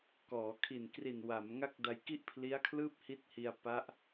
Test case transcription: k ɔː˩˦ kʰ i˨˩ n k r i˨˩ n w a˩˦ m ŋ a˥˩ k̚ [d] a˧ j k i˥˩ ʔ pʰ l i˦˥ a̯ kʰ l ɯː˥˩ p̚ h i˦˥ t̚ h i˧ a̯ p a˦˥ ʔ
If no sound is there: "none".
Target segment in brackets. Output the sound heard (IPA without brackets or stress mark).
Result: d